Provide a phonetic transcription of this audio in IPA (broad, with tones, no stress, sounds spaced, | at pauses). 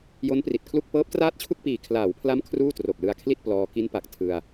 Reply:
j o˦˥ n p r i˨˩ t̚ kʰ l u˥˩ k̚ p ɤː˦˥ p̚ t r aː˥˩ t̚ t͡ɕʰ u˥˩ k̚ p iː˨˩ kʰ l aː˩˦ w pʰ l a˦˥ m kʰ r uː˥˩ t r o˨˩ k̚ l ɯ˧ a̯ kʰ l i˥˩ t̚ p l ɔː˧ k i˦˥ n p a˨˩ k̚ tʰ ɯ˧ a̯